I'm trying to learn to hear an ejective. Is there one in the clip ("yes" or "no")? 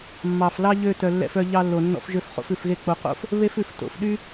no